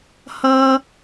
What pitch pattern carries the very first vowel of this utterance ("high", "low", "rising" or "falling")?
high